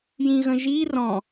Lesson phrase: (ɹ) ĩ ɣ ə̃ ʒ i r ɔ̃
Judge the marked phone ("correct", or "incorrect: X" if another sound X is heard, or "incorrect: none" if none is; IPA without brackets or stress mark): incorrect: j